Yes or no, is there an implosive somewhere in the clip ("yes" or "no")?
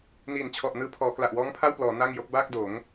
no